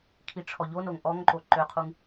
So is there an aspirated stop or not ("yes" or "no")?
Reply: yes